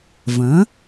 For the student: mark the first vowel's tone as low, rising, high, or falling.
rising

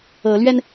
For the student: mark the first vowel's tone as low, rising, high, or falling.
rising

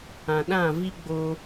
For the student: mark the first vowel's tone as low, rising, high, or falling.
low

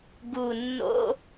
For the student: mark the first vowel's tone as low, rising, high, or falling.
low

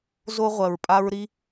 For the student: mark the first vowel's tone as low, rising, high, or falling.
high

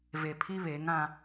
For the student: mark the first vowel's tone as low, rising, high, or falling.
low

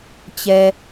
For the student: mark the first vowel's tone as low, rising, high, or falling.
low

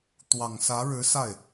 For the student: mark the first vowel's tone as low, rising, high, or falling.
low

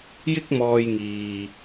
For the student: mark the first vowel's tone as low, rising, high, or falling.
high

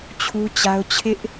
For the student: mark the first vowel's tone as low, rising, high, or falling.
high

